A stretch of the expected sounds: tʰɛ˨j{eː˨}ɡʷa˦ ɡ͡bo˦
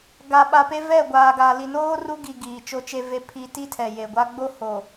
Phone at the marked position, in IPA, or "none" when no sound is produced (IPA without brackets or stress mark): e˨